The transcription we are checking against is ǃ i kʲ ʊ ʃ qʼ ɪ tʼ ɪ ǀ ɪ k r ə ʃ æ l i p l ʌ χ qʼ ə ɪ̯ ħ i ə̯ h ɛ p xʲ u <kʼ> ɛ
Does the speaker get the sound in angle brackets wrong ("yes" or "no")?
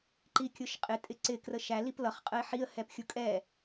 no